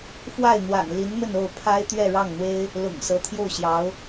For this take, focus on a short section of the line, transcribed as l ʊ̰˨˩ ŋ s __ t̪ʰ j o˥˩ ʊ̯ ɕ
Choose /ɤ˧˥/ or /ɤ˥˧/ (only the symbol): ɤ˧˥